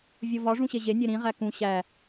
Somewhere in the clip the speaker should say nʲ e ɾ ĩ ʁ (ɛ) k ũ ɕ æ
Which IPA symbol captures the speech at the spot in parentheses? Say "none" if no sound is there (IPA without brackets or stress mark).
æ